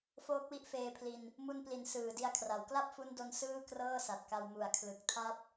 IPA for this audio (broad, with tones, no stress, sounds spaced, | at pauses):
f oː˦˥ k̚ w i˦˥ ʔ f eː˧ pʰ l i˧ n | m u˧ n p l i˨˩ n s ɯː˨˩ d i˧ a̯ kʰ r a˩˦ w k l a˥˩ p̚ f u˦˥ n d o˧ n s ɯː˥˩ k r ɤː˥˩ s a˨˩ t̚ k a˧ w m u˩˦ a̯ kʰ l ɯ˨˩ k̚ tʰ a˥˩ p̚